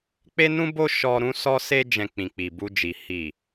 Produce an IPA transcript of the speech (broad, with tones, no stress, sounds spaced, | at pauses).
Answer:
k͡p e˦ n ũ˦ b o˦ ʃ ɔ˧ ɾ ũ˧ s ɔ˧ s e˧ d͡ʒ ɛ̃˨ k͡p ĩ˨ k͡p i˨ b u˧ d͡ʒ i˨ h i˨